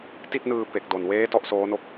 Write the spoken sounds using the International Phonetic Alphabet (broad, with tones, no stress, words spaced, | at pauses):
ti˥˩t̚nɯː˧ pe˨˩k̚do˨˩nweː˦˥ tɔ˥˩ʔsoː˦˥no˦˥k̚